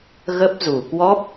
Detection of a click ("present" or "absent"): absent